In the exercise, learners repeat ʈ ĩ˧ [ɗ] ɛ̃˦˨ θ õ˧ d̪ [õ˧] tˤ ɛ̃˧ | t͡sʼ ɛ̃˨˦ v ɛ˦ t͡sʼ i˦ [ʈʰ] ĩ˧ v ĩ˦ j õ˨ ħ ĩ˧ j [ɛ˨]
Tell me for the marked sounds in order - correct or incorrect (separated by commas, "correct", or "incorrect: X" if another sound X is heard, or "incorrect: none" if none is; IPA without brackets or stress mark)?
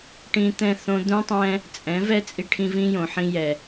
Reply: incorrect: t̪, incorrect: ũ˧, correct, correct